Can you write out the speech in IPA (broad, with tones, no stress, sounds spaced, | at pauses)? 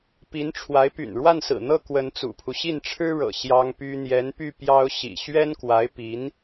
p i˧˥ n ʈ͡ʂʰ w a˧˥ ɪ̯ p y̰˨˩ n ɻ w a˥˩ n s ɹ̩˨˩ n̪ ɤ˥˩ k w ə˧˥ n t͡s ṵ˨˩ pʰ u˦ ɕ i˥˩ n ʈ͡ʂʰ ɻ̩˥ ɻ ɤ̰˨˩ ɕ j ɑ˥ ŋ p y˥ n̪ j ɛ˧˥ n p y˥˩ p j ɑ˥ ʊ̯ ɕ ḭ˨˩ ɕ ɥ ɛ˥ n k w a˧˥ ɪ̯ p i˧˥ n